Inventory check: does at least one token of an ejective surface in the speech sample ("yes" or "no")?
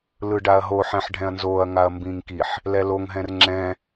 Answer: no